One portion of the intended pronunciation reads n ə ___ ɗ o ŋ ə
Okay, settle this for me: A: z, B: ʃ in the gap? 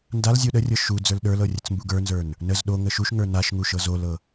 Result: A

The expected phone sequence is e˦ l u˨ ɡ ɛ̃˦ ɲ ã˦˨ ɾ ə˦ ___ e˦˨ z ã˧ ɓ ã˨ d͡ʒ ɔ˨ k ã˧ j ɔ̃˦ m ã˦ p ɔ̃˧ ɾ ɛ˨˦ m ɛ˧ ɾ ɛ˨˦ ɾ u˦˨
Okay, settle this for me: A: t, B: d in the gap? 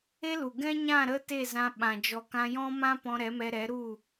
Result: A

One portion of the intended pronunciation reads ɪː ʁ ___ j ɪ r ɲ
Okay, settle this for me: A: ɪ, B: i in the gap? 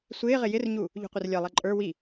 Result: A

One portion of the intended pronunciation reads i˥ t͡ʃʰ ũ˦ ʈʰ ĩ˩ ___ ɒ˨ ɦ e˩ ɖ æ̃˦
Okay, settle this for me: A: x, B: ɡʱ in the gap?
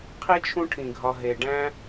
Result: B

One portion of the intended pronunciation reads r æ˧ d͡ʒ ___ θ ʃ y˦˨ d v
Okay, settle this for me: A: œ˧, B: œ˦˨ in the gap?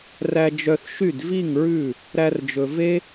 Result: A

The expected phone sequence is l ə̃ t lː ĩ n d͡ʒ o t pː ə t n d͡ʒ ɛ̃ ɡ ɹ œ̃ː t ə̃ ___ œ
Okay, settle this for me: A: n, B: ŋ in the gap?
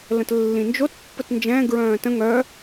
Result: B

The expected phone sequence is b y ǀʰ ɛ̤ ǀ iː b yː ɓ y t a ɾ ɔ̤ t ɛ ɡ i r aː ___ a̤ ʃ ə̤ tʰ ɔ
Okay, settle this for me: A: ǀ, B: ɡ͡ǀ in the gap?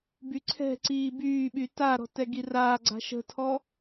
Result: B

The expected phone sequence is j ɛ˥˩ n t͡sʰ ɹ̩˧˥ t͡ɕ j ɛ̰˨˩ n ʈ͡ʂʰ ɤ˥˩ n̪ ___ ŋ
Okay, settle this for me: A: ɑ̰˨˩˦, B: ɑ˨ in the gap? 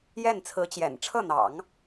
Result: A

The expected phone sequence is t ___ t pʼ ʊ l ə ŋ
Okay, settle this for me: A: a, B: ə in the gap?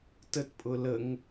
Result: B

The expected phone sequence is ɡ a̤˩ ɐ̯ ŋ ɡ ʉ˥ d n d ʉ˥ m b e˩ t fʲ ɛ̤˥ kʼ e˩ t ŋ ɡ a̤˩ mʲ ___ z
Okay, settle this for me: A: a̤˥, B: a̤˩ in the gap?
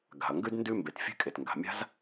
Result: A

